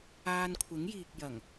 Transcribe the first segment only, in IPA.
aː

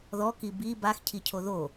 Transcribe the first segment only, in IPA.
ð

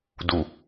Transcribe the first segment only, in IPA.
d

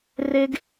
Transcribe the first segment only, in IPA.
r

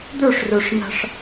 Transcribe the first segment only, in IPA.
d̪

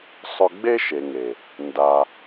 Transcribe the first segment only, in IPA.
sˤ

